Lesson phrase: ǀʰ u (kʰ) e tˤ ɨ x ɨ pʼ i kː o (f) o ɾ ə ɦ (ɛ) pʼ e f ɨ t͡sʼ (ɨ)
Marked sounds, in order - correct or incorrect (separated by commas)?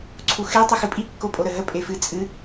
incorrect, incorrect, incorrect, correct